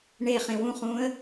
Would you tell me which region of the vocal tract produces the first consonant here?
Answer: retroflex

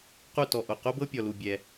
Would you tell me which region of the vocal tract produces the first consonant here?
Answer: uvula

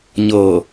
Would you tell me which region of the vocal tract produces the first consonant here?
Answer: palate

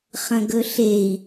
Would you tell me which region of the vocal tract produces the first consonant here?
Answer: uvula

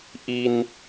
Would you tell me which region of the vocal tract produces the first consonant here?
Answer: throat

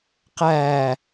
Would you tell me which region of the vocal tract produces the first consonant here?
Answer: uvula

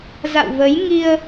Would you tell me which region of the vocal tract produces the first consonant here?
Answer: tongue tip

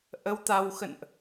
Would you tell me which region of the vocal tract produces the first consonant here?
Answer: throat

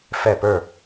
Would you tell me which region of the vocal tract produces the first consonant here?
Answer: lips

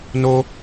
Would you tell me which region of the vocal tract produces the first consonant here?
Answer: tongue tip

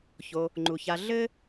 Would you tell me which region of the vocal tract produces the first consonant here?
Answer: palate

